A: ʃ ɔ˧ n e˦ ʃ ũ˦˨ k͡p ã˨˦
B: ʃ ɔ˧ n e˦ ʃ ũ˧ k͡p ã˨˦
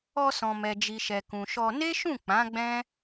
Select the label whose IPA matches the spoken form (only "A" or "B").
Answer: A